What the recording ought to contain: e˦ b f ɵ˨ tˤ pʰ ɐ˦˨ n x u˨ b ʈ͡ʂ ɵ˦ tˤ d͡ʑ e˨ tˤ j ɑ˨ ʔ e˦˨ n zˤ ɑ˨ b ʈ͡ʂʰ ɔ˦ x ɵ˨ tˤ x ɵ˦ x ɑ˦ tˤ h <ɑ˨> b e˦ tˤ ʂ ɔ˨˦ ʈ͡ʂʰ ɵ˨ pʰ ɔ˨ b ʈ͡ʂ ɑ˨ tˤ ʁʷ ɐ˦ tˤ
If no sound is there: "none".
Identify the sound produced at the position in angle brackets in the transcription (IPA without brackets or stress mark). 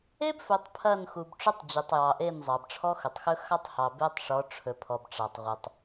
ɑ˨